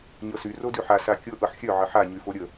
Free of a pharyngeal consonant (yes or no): no